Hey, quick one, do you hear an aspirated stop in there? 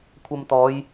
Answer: yes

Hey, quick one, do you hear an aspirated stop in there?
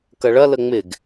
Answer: no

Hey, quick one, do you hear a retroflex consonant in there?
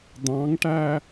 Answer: yes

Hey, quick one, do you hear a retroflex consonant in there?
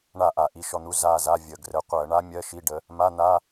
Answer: yes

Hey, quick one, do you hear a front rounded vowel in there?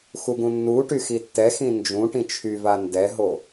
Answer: yes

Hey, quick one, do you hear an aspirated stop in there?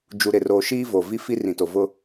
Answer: no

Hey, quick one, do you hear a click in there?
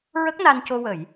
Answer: no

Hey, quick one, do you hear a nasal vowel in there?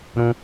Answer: yes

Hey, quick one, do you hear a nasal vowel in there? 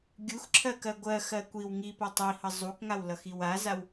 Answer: no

